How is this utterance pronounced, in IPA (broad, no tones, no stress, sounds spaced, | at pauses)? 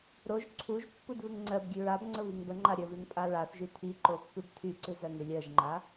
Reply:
ɾ o ʒ ǀʰ u ʒ pː u d β ɨ ŋ ŋ͡ǀ ɜ b ɡʲ ʉ ɹ a b ŋ͡ǀ ə β i ŋ b ə ŋ͡ǃ a ɾʲ ə β ʉ ŋ pʼ a ɹ a θ ʒ y tʰ i ǃ o pː ɨ b tʰ y ǀ ɨ z ɜ ŋ ɨ lʲ ɜ ʒ ŋ͡ǃ a